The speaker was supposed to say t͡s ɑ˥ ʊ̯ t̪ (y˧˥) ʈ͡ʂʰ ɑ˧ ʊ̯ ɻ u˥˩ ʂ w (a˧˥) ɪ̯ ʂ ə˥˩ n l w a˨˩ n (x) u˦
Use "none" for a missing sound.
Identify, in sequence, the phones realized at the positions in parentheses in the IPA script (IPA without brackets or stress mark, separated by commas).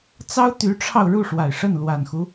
y˧˥, a˨˩, x